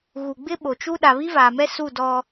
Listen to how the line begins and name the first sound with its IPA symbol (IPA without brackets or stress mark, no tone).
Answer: ɣ